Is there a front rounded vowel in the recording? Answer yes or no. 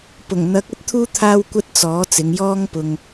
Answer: no